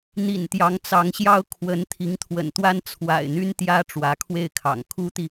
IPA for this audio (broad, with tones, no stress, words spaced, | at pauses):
n̪ḭ˨˩nt̪jɑ˧˥ŋt͡sɑ˧˥ŋɕjɑ˥ʊ̯ kʰwə˧˥n t̪ʰi˧˥ŋt̪ʰwə̰˨˩nt̪wa˥n t͡sʰwa̰˨˩ɪ̯ n̪y˥nt̪jä˥ ʈ͡ʂwä˧˥kʰwe˥˩ɪ̯kʰɑ̰˨˩ŋ kʰu˥t̪i˨